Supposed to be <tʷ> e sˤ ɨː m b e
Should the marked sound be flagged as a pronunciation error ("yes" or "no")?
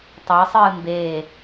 yes